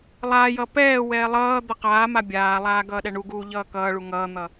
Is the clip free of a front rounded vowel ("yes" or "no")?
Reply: yes